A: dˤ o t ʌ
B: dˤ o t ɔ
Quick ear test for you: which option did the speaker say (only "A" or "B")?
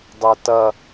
A